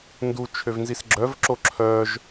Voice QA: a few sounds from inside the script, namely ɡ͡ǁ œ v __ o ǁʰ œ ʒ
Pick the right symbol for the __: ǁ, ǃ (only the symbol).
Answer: ǁ